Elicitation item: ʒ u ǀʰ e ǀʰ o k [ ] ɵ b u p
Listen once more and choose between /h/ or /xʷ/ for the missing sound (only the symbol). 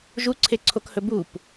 h